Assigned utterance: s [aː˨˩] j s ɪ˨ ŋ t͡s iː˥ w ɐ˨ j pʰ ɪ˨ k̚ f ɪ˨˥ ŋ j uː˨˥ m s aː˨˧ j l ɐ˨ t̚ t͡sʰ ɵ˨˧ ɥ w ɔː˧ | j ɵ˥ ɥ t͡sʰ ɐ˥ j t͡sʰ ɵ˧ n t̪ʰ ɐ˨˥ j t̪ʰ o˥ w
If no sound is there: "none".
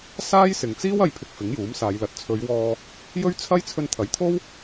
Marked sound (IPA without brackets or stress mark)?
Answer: aː˥